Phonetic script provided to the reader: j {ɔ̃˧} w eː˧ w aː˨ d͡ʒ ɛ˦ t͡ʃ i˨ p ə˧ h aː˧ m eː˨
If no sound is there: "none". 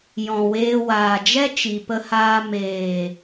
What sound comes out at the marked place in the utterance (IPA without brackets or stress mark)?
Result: ɔ̃˨